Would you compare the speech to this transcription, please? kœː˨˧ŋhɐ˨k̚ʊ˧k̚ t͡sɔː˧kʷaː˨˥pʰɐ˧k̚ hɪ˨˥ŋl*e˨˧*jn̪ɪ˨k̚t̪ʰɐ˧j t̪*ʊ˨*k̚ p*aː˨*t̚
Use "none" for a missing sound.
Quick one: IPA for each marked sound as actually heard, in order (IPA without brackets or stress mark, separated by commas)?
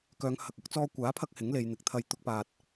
e˨˧, ʊ˧, aː˨